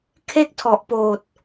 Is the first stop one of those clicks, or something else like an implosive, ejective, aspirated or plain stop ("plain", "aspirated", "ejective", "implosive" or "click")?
aspirated